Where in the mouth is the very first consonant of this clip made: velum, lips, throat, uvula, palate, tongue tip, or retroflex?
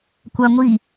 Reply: velum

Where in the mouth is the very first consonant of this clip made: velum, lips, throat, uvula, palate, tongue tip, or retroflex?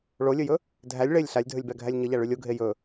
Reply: retroflex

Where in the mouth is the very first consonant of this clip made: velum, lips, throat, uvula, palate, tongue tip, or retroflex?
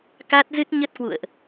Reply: velum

